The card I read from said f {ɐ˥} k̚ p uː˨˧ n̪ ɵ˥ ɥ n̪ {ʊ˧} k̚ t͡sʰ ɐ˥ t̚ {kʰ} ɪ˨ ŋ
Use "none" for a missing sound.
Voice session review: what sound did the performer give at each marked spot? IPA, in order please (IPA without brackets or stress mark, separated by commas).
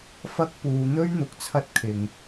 ɐ˥, ʊ˨, kʰ